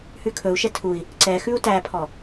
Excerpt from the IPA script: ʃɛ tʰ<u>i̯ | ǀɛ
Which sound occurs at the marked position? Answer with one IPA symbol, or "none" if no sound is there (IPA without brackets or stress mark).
u